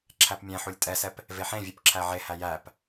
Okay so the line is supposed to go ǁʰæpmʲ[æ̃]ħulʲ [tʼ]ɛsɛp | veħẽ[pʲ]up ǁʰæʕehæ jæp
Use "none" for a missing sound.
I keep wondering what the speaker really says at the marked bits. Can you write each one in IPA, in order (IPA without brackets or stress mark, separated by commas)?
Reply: æ̃, tʼ, vʲ